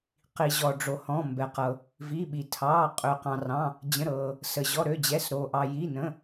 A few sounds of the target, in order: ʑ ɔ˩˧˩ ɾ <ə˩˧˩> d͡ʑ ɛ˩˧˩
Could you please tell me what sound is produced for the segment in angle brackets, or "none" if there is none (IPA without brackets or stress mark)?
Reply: ø˩˧˩